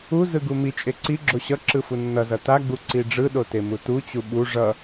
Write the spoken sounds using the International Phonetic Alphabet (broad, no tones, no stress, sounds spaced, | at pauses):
u z ɯ ɡ u m i t͡ʃʼ e ǀ i ɡ͡ǁ o ɕ ʌ ǁ ɯ f u nː ʌ z ʌ t a ɡ͡b u ǀ i ɖ͡ʐ ɯ ɗ o t e m u t u t͡ɕ u ɓ u ʐ ʌ